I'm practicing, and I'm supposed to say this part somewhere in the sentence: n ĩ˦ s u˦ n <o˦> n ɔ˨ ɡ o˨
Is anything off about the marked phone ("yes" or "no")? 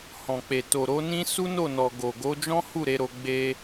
yes